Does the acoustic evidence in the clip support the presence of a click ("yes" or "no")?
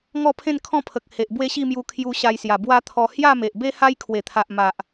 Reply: no